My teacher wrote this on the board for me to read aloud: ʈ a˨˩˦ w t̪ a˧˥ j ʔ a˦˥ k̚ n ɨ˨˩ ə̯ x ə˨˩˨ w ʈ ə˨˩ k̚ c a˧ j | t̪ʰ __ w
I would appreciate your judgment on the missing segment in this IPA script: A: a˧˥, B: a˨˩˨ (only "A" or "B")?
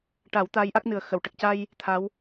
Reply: A